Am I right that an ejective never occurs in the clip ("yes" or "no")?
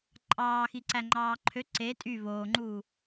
no